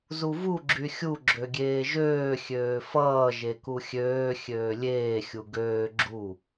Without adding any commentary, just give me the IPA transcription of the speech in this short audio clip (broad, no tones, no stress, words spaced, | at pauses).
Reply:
zuvu ɡ͡ǁyxʲu ɡ͡ǁøɡʲeːʒøː xʲøːfʌː ʒekuxʲøː xʲøːlʲeː xʲuɡøː ɡ͡ǁu